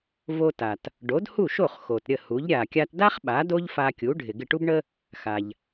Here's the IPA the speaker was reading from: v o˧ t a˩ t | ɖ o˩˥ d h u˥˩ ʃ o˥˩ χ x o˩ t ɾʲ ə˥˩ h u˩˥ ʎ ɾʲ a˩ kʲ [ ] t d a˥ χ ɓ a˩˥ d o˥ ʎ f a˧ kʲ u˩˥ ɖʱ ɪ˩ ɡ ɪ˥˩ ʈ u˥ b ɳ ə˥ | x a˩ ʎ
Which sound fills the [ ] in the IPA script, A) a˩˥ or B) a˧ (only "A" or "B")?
B